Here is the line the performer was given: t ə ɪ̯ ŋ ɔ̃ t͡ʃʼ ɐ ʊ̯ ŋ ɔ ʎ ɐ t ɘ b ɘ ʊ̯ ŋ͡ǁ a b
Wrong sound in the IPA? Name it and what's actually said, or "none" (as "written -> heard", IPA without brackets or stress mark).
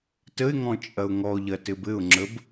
a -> ə